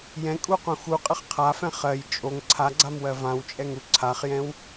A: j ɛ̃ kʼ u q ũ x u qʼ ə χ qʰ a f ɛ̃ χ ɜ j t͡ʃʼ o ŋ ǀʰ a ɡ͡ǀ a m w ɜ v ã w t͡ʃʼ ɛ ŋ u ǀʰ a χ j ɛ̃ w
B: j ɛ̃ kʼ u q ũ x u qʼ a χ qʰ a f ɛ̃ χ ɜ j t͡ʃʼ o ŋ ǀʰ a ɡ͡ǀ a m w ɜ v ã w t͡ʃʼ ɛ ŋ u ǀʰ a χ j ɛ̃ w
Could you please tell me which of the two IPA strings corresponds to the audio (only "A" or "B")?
A